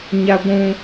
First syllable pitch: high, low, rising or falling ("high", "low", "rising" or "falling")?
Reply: high